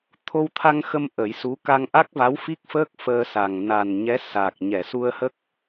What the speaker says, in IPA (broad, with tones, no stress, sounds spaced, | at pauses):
t̪ʰ o˧ w t̪ʰ a˧ ŋ x ə˧ m ʔ ə˨˩˦ j s u˧˥ k a˧ ŋ ʔ a˦˥ k̚ v a˧˥ w f i˦˥ k̚ f əː˦˥ k̚ f əː˧ s a˨˩ ŋ n a˨˩ n ɲ ɛ˧˥ s a˨˩ k̚ ɲ ɛ˨˩˨ s u˧ ə̯ h ə˦˥ k̚